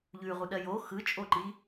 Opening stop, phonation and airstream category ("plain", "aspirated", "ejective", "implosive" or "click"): implosive